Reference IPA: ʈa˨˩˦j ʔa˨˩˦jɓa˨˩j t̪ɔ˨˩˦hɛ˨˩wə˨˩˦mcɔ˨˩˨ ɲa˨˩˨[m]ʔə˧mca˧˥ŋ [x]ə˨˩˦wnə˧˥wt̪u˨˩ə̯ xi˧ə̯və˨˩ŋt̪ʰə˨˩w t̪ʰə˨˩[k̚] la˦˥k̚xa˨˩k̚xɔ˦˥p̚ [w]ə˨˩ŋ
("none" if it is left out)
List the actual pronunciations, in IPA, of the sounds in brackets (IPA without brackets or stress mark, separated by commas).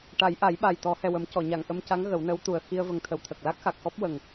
ŋ, ɣ, k̚, w